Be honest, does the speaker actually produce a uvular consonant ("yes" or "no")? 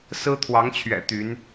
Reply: no